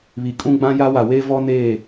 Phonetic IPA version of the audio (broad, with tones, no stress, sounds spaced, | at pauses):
β i˨ kʼ ũ˦ ɡ͡b ã˦ j a˦ w a˨ w eː˦ v ɔ˦ n eː˦˨